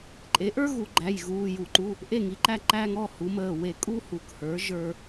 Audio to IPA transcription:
ǃʼe˩˥ʔə˞˦ ɣu˧˩˧ɡ͡ǃæ˩˧˩jɣuː˩˧˩ ju˧˩˧ǃu˩˧˩ | ʔe˦˨ŋi˩˥ǃæ˦˨ǃæː˦ŋ ɔ˩˧˩hu˩˥məː˩˧˩ we˧˩˧ kʼu˦hu˩˥khə˞˩˥ ʒə˞˦

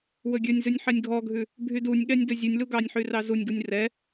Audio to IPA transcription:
wɵɡʲɵnʲzʉnʲ ħɛnʲɡʱɔɡʱʉ | bʱydunʲɠɛnʲ dɵzʲunʲlu ɡɑnʲħy rɑzunʲɡunʲ rɛ

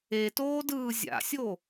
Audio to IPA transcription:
etoːdɯː zʲa̰sʲo

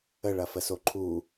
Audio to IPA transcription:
əɭɐfəso ǃʰu

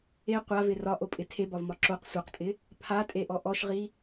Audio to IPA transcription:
e qʷavɪ rɒʔopʼɪ tʰebɒvmɒ ǁoq sʷaqtʼɪ | pʰatʼeʔɔ ʔɔʃʁi

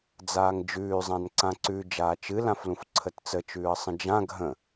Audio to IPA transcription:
d͡zaːŋd͡ʒʉːzˤãn ǀãǀʉ d͡ʒaːt͡ʃɨlãflũf ǀʰətt͡sət͡ʃʉːə̯ sˤə̃d͡ʒã ɡʱə̃

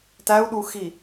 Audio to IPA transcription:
tæu̯ɗuxi

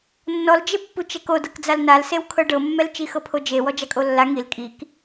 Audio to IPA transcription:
nːɔld͡ʒe pːut͡ʃɛko dɤkd͡zalnalsew kʰɤɖɤmːɛl t͡ʃixɤpʰod͡ʒe wɔd͡ʒakʼolːa ŋil kʼik

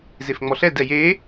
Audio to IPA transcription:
zefŋ͡mɔɬɛd ɛje

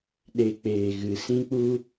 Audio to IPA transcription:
ɗe˧k͡peː˨ ɣɨ˨˦ sĩ˦k͡pu˦

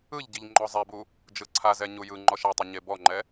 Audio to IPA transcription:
ɯʎɟiʎ ŋ͡ǃɔzˤebu | d͡ʒɯǀʰazɛ ɲujɯŋ͡ǃɔʃ atˤɯ ɲebɔŋ͡ǃɛ

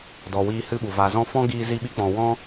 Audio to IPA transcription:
dɔ˨wiː˧ hɨ˦ɓu˨ va˨zɔ̃˧fɔ̃˦ ɡiː˧zi˧ɓi˧k͡pɔ̃˨ wɔ̃˦

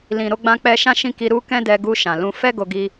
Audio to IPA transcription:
lĩ˨ ɾo˨˦ ɡ͡bã˧k͡pɛ˧ ʃã˦ʃĩ˦˨ki˧ ɾu˧ kɛ̃˦dɛ˧ɡu˧ ʃã˨lũ˧ fɛ˦ ɡo˧ ɡi˧

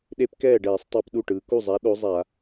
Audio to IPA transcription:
ɗe˦˥pkɛː˥˩ɖɛː˧˩˧sˤ tˤa˦˥pɗu˥˩ʈɯː˩˧ ku˥˩zˤa˨˥ ɗo˨˥zˤa˧˩˧

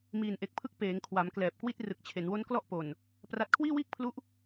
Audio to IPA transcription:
miː˨˩nʔe˨˩k̚pʰɯ˦˥k̚ peː˩˦ŋkʰwa˩˦mklɛː˨˩p̚kwi˥˩t̚ rɯ˨˩k̚t͡ɕʰe˩˦nwo˦˥n klɔ˥˩ʔpo˨˩n | pra˦˥t̚ kʰwiː˥˩wiː˥˩k̚pʰlu˦˥ʔ

